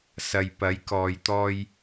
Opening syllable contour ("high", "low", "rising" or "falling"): low